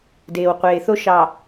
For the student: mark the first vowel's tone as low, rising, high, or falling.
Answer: low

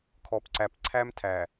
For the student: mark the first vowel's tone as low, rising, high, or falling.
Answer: low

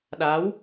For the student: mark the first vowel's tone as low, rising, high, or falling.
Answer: rising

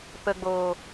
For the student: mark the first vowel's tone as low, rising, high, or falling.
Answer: low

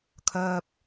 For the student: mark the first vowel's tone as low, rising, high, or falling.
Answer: high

